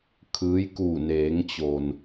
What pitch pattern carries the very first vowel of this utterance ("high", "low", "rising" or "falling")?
rising